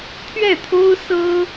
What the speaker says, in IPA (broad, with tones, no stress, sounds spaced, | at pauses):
t̪ʰ ɥ ɛ˥˩ t̪ʰ o˥ ʊ̯ s ɤ˥